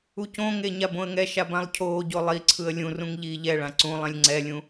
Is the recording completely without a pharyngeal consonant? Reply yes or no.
yes